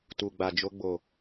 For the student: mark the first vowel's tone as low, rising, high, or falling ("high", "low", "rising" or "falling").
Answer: low